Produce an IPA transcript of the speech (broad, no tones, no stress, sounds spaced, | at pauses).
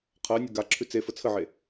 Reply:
qʰ ɜ nʲ o ɡ a ǁʰ ʉ t͡s e f ə t͡sʰ ə ʕ e